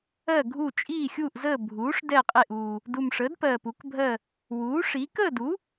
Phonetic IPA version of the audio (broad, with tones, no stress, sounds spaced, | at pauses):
ɜ˥˨ ɡʱ u˥˨ t͡ʃʼ iː˥˨ xʲ uː˥˨ ʔ z əː˥˨ bʱ uː˩˥ ʂ d ɛ˥˨ qʼ e˥˨ ʔ uː˨˩ | d u˨˩ m ʂ əː˩˥ d p ɜː˨˩ p u˩˥ k bʱ ɜ˥˨ | w uː˩˥ ʂ i˩˥ k əː˥˨ d u˩˥